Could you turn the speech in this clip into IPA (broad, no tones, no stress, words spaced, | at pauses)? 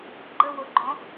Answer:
ɡ͡ǃə woɡ͡ǃɔ̃